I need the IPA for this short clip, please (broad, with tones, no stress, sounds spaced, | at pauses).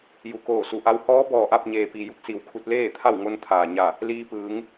j u˩˧ k oː˧˩ s u˩˧ ʔ a˧˥ w h ɔː˧˥ b ɔː˧˩ ʔ a˥˨ p̚ ɲ eː˩ p i˩ j u˧˥ k̚ s i˩ w kʰ u˧ t̚ l eː˥˨ t̪ʰ a˥˨ w ŋ o˧ n t̪ʰ aː˩ ɲ a˧˩ | l iː˧ p ɯː˩˧ ŋ